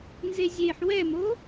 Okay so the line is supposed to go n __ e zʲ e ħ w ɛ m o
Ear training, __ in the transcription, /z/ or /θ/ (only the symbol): z